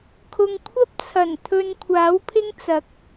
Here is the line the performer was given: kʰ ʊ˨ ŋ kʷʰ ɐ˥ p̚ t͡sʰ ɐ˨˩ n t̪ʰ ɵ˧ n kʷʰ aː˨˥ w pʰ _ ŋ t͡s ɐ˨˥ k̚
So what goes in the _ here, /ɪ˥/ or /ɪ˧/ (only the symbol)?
ɪ˥